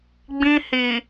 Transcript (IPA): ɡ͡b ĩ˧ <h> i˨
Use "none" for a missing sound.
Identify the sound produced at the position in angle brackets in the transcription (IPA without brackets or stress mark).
h